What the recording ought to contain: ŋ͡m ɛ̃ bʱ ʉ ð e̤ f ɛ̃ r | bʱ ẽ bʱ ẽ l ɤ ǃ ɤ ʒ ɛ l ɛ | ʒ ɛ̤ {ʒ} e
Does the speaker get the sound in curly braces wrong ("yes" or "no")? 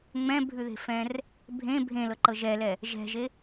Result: no